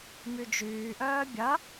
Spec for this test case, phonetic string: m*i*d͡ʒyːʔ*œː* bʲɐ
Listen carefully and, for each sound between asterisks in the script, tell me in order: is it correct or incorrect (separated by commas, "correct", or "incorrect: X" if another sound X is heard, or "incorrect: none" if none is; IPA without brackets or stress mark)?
incorrect: y, correct